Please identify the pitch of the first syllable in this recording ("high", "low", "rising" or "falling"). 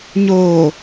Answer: low